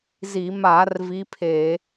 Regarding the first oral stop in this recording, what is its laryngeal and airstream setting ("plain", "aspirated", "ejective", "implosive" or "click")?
aspirated